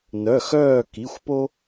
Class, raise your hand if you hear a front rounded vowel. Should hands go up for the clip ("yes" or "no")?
yes